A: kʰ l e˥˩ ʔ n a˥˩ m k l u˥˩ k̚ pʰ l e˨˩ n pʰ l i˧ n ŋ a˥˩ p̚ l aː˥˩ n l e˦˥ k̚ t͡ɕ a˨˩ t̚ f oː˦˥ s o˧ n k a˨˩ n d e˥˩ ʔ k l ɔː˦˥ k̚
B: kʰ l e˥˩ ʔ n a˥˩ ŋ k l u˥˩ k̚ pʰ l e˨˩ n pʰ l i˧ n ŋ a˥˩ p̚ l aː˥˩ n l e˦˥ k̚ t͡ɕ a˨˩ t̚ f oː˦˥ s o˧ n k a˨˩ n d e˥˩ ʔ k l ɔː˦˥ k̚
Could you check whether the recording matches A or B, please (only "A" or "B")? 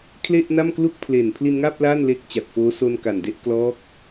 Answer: A